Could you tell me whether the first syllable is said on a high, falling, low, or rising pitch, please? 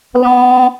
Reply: high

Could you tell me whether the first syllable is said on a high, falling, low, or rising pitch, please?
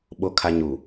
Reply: low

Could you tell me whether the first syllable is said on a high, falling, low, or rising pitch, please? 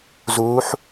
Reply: rising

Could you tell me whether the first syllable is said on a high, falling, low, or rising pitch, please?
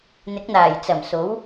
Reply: rising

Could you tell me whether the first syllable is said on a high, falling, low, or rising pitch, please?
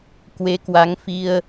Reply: rising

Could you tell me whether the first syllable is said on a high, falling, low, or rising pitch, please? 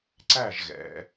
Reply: falling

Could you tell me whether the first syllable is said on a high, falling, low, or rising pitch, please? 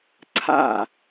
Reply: falling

